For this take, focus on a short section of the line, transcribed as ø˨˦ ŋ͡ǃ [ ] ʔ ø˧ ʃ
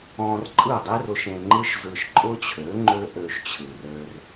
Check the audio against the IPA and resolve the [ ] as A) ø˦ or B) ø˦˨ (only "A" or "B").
A